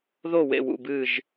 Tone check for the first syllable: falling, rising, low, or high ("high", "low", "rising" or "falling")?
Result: falling